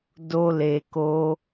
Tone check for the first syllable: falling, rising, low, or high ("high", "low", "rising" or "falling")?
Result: low